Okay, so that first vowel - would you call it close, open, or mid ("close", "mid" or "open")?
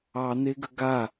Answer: open